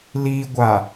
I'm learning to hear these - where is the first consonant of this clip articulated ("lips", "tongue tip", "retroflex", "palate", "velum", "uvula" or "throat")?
tongue tip